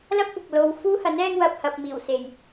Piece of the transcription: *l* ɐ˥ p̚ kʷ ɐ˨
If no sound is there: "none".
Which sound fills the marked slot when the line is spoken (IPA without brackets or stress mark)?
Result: l